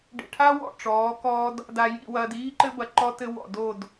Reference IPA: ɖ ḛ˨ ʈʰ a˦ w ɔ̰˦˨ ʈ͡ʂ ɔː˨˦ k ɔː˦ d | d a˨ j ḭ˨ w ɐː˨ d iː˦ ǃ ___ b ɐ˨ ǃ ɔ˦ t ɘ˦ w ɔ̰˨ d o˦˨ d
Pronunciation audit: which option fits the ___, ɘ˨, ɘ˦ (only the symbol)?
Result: ɘ˦